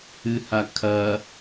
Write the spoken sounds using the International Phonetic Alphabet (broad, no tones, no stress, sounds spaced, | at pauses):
ɨ h a kʰ ɐ